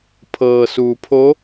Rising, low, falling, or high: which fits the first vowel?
low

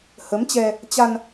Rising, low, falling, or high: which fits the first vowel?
rising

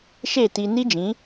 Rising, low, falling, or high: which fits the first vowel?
falling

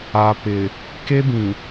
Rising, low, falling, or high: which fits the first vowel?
low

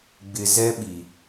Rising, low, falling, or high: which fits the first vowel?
low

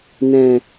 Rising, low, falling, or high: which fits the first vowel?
low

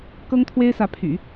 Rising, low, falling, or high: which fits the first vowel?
high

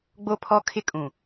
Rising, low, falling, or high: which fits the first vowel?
high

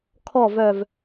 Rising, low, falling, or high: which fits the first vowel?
low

